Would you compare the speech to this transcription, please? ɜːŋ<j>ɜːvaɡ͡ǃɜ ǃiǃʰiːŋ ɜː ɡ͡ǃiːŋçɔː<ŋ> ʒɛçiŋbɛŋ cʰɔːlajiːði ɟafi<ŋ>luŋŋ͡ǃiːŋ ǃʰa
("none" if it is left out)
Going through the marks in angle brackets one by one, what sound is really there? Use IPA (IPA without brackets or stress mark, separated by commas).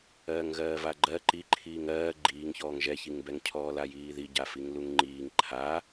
ɣ, ŋ, ŋ